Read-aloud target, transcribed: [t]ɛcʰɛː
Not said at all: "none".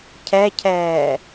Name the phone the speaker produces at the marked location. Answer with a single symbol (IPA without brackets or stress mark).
cʰ